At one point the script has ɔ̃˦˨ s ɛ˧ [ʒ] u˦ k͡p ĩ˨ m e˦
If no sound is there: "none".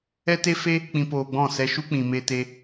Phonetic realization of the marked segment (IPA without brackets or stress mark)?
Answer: ʃ